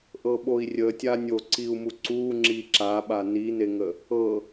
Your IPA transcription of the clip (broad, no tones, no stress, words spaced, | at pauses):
ʔɤɓoi̯rʲətʲa nʲoǀiu̯mu ǀu ŋ͡ǁiǁaɓa nineŋə | ɤ